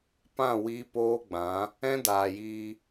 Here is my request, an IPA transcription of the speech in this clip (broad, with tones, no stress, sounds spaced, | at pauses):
p ã˦˨ w iː˧ p oː˦ ɡ͡b ã˨˦ | ɛ̃˦ d aː˨ j iː˧